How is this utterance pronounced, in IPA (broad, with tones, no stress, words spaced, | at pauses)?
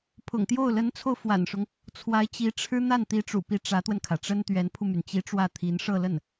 pʰʊ̰˨˩ŋ t̪jo˥˩ʊ̯ lə˧˥nt͡sʰo˧ʊ̯ fwa̰˨˩nʂʊ˦ŋ | t͡sʰwa˧˥ɪ̯t͡ɕi˧˥ʈ͡ʂʰɻ̩˥ n̪a˥˩nt̪i˧˥ʈ͡ʂṵ˨˩pi˧˥ ʈ͡ʂä˧˥t̪wə˧nkʰä˩ʈ͡ʂə˥n t̪ɥɛ˧˥npʰu˧my˩n t͡ɕi˧˥ ʈ͡ʂwä˥˩t̪ʰi˧˥n ʂɤ˥˧lə˥˩n